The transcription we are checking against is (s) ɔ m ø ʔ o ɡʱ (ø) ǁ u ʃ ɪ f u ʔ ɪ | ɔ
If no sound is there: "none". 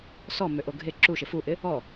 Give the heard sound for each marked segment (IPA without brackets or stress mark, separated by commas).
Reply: s, e